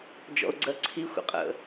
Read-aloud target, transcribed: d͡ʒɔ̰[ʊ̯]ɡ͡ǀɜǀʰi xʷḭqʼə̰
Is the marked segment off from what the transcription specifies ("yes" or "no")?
no